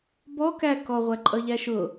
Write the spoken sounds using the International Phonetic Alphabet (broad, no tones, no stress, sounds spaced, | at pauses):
b ɔ k æ k ɔ ʁʷ æ ǃʼ ʌ ʎ æ ʃ ʊ